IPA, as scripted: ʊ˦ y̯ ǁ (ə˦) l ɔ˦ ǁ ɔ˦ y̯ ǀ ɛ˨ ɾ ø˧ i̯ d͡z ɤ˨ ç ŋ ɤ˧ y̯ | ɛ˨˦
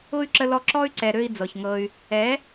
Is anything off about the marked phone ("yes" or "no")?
no